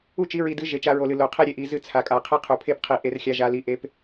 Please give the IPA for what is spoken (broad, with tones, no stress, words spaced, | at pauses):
u˦˨t͡ʃi˨˦ɹi˨dɨ˨˦ ʒe˨t͡ʃa˧ɹo˨ lɨ˨lo˨qʰe˦ɾʲe˨ ʔi˨ zɨ˧t͡sʰa˨kʼa˨ qʰe˦qʰu˨pʰe˦p qʰi˧ʔe˦r xʲa˧ ʒa˧li˧ ʔe˧p